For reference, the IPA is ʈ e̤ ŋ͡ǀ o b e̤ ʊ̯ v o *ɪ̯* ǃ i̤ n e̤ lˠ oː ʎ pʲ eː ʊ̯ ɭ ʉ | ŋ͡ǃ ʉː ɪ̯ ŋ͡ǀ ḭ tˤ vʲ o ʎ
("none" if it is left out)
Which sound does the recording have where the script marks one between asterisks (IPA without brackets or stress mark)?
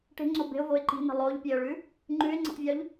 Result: ɪ̯